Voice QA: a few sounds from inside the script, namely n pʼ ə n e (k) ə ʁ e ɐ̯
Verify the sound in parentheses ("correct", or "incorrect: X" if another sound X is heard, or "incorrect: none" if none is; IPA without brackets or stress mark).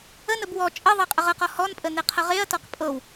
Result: incorrect: qʰ